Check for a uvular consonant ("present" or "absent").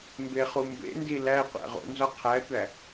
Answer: present